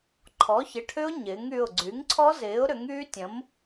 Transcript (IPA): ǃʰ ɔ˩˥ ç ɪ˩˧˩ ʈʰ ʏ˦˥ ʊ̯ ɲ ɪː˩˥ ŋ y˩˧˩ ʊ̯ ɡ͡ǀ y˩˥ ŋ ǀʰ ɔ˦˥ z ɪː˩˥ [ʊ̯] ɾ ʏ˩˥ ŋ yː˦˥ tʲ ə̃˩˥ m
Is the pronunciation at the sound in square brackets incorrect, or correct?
correct